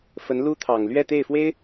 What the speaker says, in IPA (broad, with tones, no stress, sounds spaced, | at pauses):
f ə˧˥ n l u˥ t̪ʰ ɑ˨˩ ŋ l ɥ ɛ˥˧ t̪ e˥˩ ɪ̯ f w e˥ ɪ̯